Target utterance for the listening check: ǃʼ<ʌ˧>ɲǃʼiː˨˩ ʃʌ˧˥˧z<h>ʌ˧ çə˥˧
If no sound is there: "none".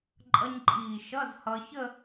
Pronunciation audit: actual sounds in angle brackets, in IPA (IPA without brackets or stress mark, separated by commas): ʌ˧, h